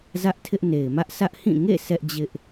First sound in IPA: z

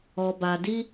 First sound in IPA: ɔ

